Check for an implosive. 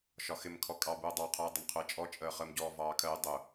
absent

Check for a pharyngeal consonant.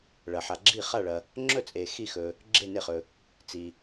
present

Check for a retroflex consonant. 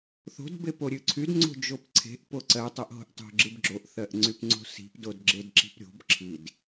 absent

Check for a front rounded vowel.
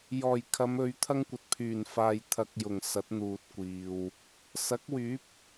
present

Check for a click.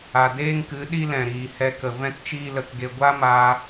absent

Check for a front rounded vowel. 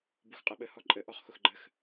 absent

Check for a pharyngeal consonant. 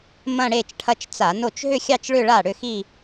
absent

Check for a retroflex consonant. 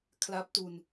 absent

